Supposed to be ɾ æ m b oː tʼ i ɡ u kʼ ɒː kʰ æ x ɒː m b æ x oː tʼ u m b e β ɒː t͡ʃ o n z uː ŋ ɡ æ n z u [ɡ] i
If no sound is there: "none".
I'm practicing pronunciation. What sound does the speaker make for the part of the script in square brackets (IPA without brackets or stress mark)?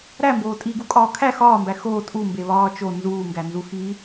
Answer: x